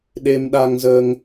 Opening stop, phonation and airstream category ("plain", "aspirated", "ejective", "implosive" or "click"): implosive